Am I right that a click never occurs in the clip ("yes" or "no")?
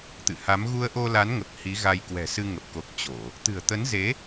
yes